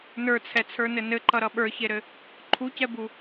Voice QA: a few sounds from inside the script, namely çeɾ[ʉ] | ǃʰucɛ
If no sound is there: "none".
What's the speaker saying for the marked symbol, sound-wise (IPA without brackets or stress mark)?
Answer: ɘ